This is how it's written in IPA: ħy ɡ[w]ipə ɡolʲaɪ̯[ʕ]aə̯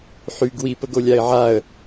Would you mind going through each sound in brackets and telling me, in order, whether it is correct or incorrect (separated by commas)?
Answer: correct, correct